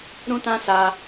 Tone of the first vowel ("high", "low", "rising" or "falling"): high